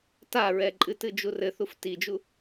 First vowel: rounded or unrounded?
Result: unrounded